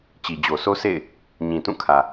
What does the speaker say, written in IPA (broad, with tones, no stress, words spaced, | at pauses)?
t͡ɕi˨d͡ʑo˨sʰo˦sḛ˦˨ɪ̯ | ɲĩ˨tũ˦˨kʰä˨